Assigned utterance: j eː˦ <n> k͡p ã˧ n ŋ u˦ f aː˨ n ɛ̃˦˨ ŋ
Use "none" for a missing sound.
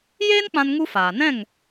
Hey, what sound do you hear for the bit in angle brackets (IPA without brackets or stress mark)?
n